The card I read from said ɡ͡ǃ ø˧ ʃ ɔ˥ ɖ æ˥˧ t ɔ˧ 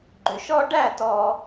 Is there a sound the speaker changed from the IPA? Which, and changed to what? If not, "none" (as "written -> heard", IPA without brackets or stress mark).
none